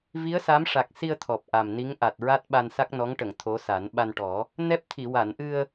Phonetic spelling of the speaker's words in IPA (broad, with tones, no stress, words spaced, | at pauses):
vi˧˥ə̯sa˧˥mʂa˨˩k̚si˧ə̯ t̪ʰɔ˨˩p̚ʔa˨˩mni˧˥ŋ ʔa˨˩t̚ɹa˦˥t̚ ɓa˧nsa˦˥k̚nɔ˧˥ŋʈə˨˩˨ŋ t̪ʰo˧˥sa˨˩˦n ɓa˧nʈɔ˨˩˦ | nɛ˦˥p̚t̪ʰi˨˩˨ wa˨˩˨nʔɨ˧ə̯